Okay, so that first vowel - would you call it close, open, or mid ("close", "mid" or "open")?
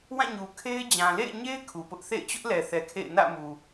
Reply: open